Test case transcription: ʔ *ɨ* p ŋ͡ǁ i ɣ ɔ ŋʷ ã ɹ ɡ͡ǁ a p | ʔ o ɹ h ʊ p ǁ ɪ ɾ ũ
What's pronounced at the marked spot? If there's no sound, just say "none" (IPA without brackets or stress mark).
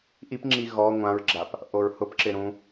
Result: i